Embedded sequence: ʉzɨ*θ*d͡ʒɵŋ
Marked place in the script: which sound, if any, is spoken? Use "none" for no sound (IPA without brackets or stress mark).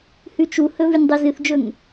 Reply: θ